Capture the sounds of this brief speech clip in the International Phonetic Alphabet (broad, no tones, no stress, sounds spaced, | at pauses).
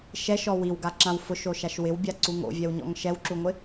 ʃ ɛ ʃ ɔ w i w ɡ a ǁ ã w f ʊ ʃ o ʃ a ʃ w ɪ w bʲ a ǀ u ŋ o̰ vʲ ɛ w ɲ ɔ̰ ŋ ʃ ɛ w ǁ u ŋʷ ɪ